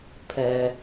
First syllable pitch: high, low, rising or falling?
low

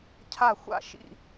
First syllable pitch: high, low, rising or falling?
falling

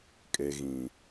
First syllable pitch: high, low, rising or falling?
low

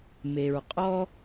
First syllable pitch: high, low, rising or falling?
low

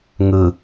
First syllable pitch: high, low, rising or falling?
low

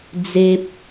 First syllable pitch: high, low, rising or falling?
high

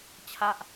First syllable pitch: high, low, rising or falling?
falling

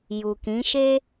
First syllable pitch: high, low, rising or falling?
low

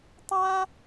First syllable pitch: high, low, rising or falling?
high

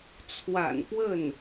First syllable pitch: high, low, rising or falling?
low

